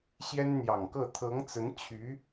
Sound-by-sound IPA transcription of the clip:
ɕjɛ˥nn̪jɑ˨˩ŋkɤ˥˩ t̪ʰɤ˧˥ŋt͡sə˧˥nt͡ɕʰy˧˥

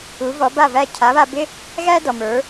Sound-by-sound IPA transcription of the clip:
u˩˥vɔ˩˥ba˥˩væ˥˩ cʰa˩˥βa˧bɪ˥ | ɣæ˥ dɔ˩mə˞˩˥

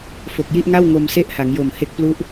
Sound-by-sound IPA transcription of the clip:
fo˨˩k̚ji˥˩ʔŋa˥˩w ŋo˧mse˥˩ʔha˩˦ŋjo˨˩m he˥˩k̚plu˥˩ʔ

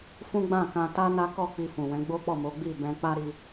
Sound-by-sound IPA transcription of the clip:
fũ˦ɡ͡bã˦˨ kã˧ ta˦ na˦kɔ˦˨ k͡pi˧fũ˨wɛ̃˨˦ ɡ͡bo˦k͡pɔ˦˨mo˨˦ ɡ͡bi˦˨bɛ̃˧ k͡pa˦ ɾi˧

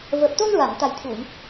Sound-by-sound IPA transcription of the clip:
vəː˨˩p̚t̪o˧ŋ ɹa˨˩˨ŋt̪a˨˩jt̪ʰu˨˩˨j

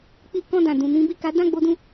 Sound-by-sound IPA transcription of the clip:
k͡pi˦ kɔ̃˧dã˨ dũ˨nĩ˨˦ bi˦˨ka˨˦ dã˦˨ɡ͡bo˧dũ˧

